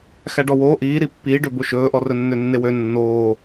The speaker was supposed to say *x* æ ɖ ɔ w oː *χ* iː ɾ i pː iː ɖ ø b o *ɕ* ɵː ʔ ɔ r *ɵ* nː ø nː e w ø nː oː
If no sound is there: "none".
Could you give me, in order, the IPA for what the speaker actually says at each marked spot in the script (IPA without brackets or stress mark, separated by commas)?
x, ʔ, ʃ, ɵ